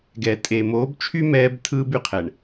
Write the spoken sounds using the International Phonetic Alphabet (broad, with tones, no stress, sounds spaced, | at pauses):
ɡ ɛ˨ tʼ e˨ m oː˨˦ b t͡ʃʰ y˦ m ɛː˦ b tʰ ɯː˦ b y˨ qʰ ɛ˨ ɳ